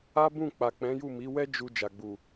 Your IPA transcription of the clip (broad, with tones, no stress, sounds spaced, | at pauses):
a˦ b ũ˦˨ k͡p a˨ k͡p ɛ̃˨˦ j u˦˨ m i˨˦ w ɛ˦ d͡ʒ u˧ d͡ʒ a˨ ɡ͡b u˨